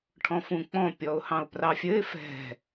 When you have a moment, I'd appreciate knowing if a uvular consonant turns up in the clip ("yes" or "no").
no